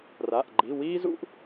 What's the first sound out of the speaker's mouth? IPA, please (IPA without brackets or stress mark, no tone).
r